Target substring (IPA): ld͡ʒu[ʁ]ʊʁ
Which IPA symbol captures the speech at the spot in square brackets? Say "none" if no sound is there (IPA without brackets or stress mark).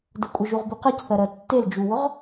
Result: w